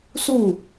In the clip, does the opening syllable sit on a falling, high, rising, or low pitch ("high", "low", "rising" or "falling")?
falling